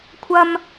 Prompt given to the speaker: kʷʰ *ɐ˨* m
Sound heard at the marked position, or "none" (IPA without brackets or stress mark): ɐ˨